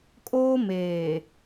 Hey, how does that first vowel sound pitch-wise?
high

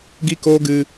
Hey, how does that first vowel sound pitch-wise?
high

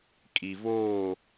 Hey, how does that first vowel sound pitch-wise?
low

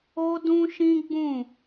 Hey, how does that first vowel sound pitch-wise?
high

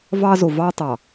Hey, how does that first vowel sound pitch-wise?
high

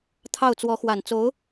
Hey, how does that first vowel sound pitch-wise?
falling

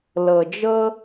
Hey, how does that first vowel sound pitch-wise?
low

